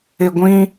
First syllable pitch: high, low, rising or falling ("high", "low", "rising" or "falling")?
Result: low